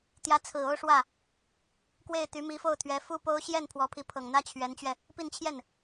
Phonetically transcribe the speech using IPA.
t̪jä˧˥t͡sʰɹ̩˨˩ o˥ʊ̯ʂwä˥˩ | kwe˥˩ɪ̯t̪y˧˥mi˧˥fo˥˩ʊ̯ t̪ʰɥɛ˧˥fu˥po˥ʊ̯ ɕjɛ˥˩n pʰwɔ˧˥pʰi˧˥pʰɤ˨˩ŋn̪ä˥ t͡ɕʰɥɛ˧˥nt͡ɕɥɛ˧ | pi˥˧nt͡ɕʰjɛ˥˩n

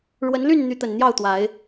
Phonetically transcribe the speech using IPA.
ɻwə˨˦nly˥˨nn̪y˨˦t̪ə˨˩n n̪jɑ˥˨ʊ̯t̪wa˨˦ɪ̯

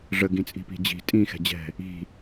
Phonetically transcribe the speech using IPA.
ʐə ɡĩt͡sʼi̤pi̤d͡ʑi̤ tʼĩ xɛ̤d͡ʑɛ̤ | i̤

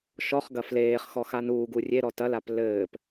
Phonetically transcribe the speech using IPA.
ʃɔχɡɐ fleːχxɔ xanuːɡu rʲeɾɔ tɐlap lɘːp

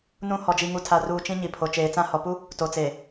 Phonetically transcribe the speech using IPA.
nũ˦ hɔ˨d͡ʒi˨ŋu˨ tʰa˨ruː˨ t͡ʃĩ˦ɲi˨ pʰo˨t͡ʃeː˨t͡sã˦ hɔ˨pu˦ | to˨t͡seː˨

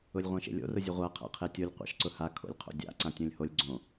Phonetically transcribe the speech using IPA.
ʊlʲʁʷãʃḛlʲo̰ rʊzʲʊʁʷa qʰa̰qʰetʲolʲ qʷa̰ʃǀʊha kʰo̰lʲqʰo̰dʲa̰ ǀãtʲõlʲholʲ ɡ͡ǀõ

